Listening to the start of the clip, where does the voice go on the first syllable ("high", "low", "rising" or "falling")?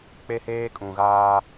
high